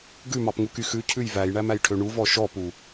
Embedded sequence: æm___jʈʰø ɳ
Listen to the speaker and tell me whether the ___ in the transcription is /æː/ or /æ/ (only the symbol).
æ